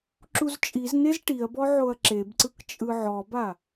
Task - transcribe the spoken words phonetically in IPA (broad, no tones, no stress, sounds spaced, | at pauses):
ǁ u z t͡ʃʼ i z n e z ʈ i ɐ̯ b ɔ ʕ o ɐ̯ ǁ e b ǀ ɯ k t͡ʃʼ ɯ ʕ ɔ b a